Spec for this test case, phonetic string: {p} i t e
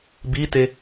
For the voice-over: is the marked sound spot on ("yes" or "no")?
no